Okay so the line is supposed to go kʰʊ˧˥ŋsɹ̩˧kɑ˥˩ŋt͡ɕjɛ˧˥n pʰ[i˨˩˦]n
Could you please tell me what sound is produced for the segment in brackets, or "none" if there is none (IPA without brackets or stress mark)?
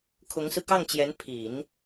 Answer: i˨˩˦